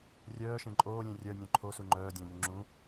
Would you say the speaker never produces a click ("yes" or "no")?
no